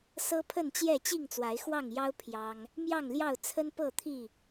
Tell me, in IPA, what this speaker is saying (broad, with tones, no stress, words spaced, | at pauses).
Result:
sɤ˦pʰə˥˨nt͡ɕjɛ˥˨ t͡ɕi˥˨ŋt͡swa˨˦ɪ̯xwɑ˥˨ŋjɑ˦ʊ̯ pʰjɑ˦ŋ | mjɑ˥˨ŋljɑ˥˨ʊ̯ t͡sʰə˦npɤ˥˨t̪ʰi˥˨